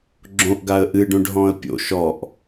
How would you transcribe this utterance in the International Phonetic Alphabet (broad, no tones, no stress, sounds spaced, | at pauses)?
ɡ͡ǁ õ ʔ ɡ a ə̯ ʔ ɨ ɖ õ ɖ ɦ ɔ̃ ə̯ pʲ o̰ ʃ ɔ ʔ